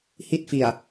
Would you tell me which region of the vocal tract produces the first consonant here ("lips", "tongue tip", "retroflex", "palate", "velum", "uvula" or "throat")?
throat